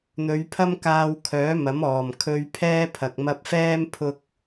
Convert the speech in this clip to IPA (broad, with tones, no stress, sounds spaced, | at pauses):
n̪ ɵ˨˧ ɥ pʰ ɐ˥ m k aː˧ w kʰ œː˨˥ m ɐ˨˥ m ɔː˨˩ m kʰ ɵ˧ ɥ pʰ ɛː˥ pʰ ɐ˨ k̚ m ɐ˧ p̚ f ɛː˥ m pʰ ʊ˥ k̚